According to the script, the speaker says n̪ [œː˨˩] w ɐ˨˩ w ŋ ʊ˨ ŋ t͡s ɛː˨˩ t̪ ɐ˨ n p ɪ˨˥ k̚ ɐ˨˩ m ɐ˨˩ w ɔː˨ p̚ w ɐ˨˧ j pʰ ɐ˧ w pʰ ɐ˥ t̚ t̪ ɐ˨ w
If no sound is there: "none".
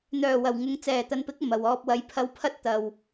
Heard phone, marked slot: œː˨˩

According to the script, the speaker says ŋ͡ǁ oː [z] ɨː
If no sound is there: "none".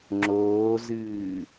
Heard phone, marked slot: z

